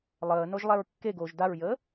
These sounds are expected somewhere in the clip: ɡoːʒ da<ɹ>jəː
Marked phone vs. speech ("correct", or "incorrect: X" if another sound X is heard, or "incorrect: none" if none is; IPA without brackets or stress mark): correct